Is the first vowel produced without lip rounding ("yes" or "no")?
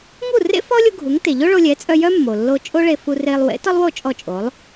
no